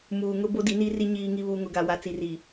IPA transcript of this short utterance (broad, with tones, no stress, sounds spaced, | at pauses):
m uː˨ ŋ ʊ˦ b o˦ d i˨˦ n i˦ r i˦ ɲ iː˨ ŋ i˨ β uː˨ ŋ ʊ˨ ɡ a˨ w a˨ t͡s i˨ r i˨